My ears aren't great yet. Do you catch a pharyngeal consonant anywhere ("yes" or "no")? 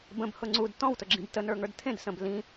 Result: no